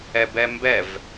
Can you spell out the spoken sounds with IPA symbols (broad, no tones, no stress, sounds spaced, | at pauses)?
ɛ b ɛ m b ɛ v